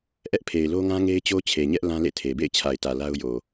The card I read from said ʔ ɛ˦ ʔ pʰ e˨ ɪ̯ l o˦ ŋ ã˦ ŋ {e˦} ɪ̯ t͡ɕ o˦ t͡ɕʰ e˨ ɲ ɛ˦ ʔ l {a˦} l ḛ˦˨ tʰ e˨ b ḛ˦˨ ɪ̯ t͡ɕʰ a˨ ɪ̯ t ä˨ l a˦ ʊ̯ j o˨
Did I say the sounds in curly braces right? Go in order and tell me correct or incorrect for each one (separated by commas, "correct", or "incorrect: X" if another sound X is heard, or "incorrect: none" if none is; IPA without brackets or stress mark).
correct, incorrect: ã˦